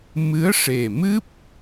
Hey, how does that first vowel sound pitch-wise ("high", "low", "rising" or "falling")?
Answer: rising